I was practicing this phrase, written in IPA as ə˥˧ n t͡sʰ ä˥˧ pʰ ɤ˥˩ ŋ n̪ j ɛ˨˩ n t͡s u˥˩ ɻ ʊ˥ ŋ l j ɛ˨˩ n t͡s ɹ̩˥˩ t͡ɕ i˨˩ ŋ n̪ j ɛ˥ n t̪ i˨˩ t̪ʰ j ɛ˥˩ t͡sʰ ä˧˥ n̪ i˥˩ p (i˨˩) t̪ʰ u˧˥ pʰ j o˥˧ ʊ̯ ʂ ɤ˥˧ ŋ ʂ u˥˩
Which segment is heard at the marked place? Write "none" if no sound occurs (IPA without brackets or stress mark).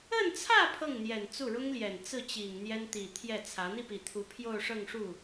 i˨˩